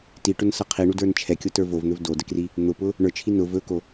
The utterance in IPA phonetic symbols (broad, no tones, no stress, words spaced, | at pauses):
tiʈʊnsʌ qʰiɳudə˞n t͡ʃʰɛkʲotə˞ vovn̪ɵv dodəkri | n̪ʊpʊ | ɳə˞t͡ʃʰi nʊ vɵko